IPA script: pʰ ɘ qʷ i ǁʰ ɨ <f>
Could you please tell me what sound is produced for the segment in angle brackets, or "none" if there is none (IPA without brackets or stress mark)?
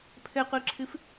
f